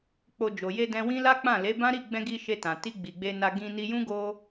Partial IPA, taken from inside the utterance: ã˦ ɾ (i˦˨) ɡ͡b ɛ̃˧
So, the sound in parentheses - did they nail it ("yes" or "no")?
yes